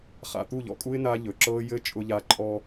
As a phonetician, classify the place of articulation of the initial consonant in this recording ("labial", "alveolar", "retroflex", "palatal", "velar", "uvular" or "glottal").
uvular